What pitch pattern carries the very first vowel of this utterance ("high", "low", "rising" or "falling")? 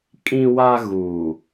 high